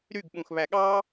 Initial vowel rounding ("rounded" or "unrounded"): rounded